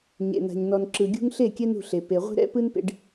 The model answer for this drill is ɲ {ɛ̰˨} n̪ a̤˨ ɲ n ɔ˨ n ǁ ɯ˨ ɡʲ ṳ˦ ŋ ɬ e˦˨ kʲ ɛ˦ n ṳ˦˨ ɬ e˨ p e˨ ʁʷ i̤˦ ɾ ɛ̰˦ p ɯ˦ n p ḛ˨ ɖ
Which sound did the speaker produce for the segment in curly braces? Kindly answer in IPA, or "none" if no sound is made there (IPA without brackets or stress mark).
ḛ˨